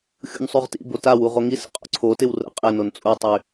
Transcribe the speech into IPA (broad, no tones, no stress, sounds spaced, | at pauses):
xʲ ṵ n sˤ y ʁ t ḭ b o t a w u ʁ o ŋ i s ə̰ qʼ o̰ ǀʰ o t ɪ w r ə̰ qʼ ɪ n o n t͡sʼ u tˤ y